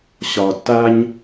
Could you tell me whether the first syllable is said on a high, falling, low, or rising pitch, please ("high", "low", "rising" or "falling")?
low